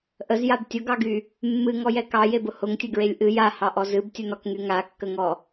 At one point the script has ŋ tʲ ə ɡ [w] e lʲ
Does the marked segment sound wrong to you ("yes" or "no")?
yes